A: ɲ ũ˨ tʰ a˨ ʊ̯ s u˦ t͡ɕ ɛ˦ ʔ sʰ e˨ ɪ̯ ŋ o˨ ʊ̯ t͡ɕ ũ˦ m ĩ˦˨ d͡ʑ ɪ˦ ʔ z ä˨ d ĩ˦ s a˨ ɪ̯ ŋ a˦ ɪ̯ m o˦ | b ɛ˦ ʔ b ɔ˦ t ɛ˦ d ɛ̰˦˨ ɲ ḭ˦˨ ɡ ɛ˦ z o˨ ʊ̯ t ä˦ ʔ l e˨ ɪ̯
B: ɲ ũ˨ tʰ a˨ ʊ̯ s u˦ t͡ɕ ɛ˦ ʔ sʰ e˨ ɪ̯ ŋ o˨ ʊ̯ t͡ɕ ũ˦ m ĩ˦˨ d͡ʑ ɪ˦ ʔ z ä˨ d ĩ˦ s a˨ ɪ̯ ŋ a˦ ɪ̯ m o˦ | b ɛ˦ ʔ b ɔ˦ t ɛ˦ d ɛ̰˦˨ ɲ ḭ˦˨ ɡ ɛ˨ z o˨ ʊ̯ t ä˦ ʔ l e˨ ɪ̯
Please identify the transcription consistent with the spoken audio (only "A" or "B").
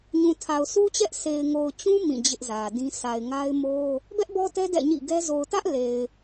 A